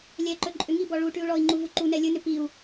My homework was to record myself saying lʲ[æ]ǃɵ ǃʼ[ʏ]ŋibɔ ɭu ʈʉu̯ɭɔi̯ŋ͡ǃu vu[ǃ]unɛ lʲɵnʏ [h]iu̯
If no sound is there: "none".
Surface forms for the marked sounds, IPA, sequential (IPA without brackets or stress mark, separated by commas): ɛ, ʏ, ǃ, p